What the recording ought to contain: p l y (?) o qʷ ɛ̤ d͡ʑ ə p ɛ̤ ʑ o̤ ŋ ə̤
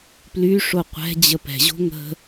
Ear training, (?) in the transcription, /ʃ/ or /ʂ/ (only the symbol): ʂ